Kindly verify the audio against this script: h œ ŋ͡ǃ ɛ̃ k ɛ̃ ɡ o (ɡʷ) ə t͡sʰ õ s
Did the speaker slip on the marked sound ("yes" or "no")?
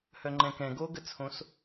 yes